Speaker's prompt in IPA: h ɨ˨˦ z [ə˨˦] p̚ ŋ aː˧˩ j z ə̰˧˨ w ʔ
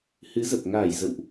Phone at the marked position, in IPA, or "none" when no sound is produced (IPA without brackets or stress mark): ə˨˩